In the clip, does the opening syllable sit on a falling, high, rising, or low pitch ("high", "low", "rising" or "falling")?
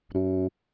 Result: low